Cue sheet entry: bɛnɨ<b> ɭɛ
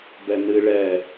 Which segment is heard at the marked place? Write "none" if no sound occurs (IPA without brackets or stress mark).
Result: none